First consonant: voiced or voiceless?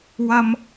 voiced